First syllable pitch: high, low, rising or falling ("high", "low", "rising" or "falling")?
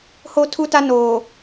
high